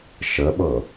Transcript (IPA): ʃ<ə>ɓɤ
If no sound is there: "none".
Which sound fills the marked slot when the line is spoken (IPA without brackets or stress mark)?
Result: ə